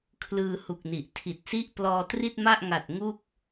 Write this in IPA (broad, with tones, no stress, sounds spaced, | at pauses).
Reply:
kʰ l ɯː˧ h u˨˩ k̚ n i˨˩ ʔ tʰ i˨˩ t̚ s i˥˩ ʔ p l ɔː˧ t r i˥˩ t̚ m a˥˩ ʔ ŋ a˨˩ t̚ ŋ u˥˩ k̚